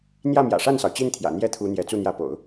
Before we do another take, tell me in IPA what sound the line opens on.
n̪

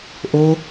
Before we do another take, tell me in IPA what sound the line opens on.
ʔ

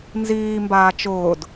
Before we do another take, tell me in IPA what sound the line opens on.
n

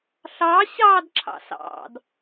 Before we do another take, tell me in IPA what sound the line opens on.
ɬ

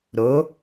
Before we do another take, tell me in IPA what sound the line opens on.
ɾ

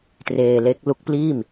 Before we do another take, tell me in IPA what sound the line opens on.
t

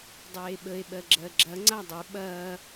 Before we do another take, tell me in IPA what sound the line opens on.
dˤ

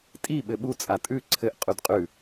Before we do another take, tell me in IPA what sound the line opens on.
tʼ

